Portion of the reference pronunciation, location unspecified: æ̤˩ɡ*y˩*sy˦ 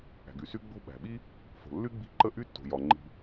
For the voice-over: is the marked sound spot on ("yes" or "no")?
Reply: yes